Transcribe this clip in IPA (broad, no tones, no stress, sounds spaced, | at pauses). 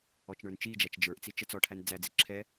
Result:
ɔ t͡ʃ ɳ ə˞ n t͡ʃ i d͡ʒ æ t͡ʃ d͡ʒ ə˞ ʔ t͡s i t͡ʃ ə t͡s ɔ ʈʰ æ n d͡z æ d͡z i ǁʰ ɛ